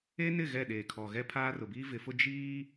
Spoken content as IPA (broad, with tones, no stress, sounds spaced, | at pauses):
e˦ n ɪ˦˨ ɣ ɛ˦˨ ɗ eː˨ kʰ ɔ˨ ɣ ɛ˦ pʰ aː˦ r ʊ˨ b iː˦ v ɪ˨˦ f ʊ˦ d͡ʒ iː˦